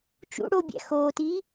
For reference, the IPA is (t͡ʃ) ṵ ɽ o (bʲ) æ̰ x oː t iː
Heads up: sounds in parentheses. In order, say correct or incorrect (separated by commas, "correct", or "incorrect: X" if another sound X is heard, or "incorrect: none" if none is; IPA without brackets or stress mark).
correct, correct